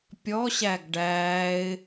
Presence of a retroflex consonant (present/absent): present